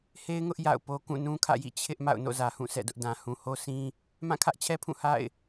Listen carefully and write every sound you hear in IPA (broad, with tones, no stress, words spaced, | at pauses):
he˦ɪ̯ŋʊ˦ʔ ja̰˦˨ʊ̯po˦ kũ˦˨nũ˦kʰä̰˦˨jḭ˦˨ t͡ɕʰɪ˦ʔ ma̰˦˨ʊ̯no̰˦˨zä˨hũ˦˨ sɛ̰˦˨dʊ˦ʔdã˨ hũ˨ho˦sĩ˦ | mã˦˨kʰä˦ʔt͡ɕʰɛ˦pʰũ˦˨ ha̰˦˨ɪ̯